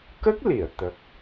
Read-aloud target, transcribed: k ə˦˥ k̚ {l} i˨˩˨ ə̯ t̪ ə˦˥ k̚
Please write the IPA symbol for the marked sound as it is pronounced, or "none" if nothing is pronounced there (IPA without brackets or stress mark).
l